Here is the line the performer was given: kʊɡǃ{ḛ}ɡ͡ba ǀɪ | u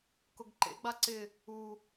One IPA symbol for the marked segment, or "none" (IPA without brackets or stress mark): ḛ